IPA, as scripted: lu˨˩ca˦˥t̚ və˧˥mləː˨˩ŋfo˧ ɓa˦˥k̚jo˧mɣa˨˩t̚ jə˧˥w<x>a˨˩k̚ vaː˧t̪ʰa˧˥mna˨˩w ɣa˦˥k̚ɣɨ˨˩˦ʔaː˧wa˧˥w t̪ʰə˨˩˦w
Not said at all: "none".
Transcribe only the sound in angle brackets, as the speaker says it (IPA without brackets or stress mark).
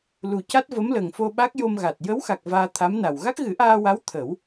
x